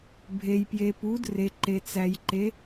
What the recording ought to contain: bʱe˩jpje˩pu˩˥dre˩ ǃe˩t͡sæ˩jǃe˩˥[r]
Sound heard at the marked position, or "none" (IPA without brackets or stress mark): none